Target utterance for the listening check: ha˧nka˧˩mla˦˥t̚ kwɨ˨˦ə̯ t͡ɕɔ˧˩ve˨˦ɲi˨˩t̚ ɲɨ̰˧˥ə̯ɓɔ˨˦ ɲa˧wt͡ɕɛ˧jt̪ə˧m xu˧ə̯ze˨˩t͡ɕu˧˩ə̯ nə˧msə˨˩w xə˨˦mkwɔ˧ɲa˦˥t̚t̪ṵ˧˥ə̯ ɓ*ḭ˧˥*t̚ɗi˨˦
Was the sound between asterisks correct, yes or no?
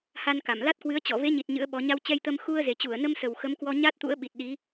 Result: no